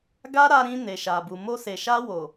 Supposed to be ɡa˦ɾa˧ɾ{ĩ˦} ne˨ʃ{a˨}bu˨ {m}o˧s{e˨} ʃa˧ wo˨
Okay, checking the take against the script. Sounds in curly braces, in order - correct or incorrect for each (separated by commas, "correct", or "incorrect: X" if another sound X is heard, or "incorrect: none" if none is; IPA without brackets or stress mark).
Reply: incorrect: ĩ˧, correct, correct, correct